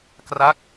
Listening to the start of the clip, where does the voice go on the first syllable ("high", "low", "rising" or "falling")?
falling